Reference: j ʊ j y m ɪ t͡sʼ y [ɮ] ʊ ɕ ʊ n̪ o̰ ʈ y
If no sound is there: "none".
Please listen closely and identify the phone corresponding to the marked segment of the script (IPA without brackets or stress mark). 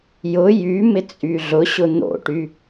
ɮ